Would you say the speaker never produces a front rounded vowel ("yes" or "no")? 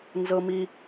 yes